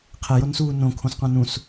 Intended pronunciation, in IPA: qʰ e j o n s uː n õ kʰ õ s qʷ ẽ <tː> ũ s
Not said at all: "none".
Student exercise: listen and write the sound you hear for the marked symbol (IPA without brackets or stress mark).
n